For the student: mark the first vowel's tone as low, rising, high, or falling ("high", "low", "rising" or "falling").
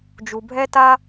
low